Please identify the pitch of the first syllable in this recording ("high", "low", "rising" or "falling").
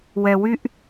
low